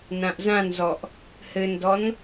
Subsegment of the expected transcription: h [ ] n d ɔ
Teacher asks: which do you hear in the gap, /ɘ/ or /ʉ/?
ɘ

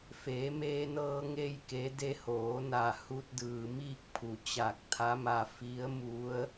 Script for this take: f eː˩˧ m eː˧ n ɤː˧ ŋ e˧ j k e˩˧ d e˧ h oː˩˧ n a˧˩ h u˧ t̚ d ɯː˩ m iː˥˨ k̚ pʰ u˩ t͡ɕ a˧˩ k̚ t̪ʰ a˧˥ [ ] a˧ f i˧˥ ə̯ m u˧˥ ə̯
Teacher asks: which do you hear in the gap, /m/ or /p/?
m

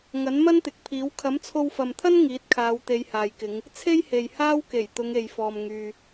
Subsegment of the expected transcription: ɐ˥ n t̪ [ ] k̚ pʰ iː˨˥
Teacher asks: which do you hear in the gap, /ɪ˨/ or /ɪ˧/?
ɪ˨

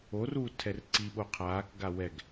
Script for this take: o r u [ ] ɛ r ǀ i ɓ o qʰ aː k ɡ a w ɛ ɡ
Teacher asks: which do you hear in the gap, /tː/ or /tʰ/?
tʰ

